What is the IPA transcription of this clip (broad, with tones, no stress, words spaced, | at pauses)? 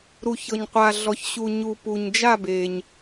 ɾu˩çɤ˩ɲ qʷa˩ɮɔ˩ç ɕu˩ɲu˩ pu˩ɲd͡ʒa˦˨be˩ɲ